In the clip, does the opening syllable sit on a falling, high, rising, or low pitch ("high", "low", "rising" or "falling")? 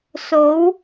rising